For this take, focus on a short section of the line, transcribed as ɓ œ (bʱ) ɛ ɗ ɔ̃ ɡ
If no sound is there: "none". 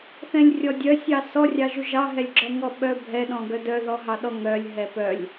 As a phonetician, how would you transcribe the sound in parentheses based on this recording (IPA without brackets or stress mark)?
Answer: bʱ